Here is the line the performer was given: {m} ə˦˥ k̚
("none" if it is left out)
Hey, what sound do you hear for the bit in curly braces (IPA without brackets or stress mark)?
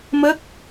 m